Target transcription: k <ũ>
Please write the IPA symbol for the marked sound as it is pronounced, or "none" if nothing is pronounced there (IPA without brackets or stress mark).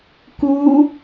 u